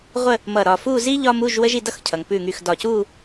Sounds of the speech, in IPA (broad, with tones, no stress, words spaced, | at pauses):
ʁʷə˥˧ | mʌ˧˩ ɾɒ˧˩fu˥˧ zi˥ ʎɒ˥mu˧˥˧ʒ wə˥ʒi˥˧dʌ˥x cʰʌ˩ŋpʉ˧˩ŋy˧˩x dɒ˧˩cu˥˧